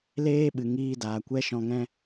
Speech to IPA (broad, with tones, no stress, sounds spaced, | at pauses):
l eː˦ ɓ ɨ˨ ŋ iː˦ d aː˨ kʷ ɛ˦ ʃ ɔ̃˧ ŋ ɛ̃˦